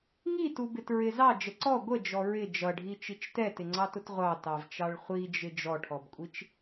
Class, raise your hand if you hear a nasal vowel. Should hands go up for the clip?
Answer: no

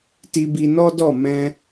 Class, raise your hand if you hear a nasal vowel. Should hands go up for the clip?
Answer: yes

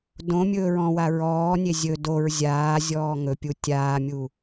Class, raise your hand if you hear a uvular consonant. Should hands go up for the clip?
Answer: no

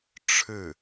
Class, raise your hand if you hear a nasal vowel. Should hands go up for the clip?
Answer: no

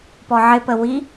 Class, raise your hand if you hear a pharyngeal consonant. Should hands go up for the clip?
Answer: yes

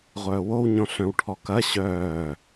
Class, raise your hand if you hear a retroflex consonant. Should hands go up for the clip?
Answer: yes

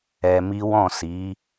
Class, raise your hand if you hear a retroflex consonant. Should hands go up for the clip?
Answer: no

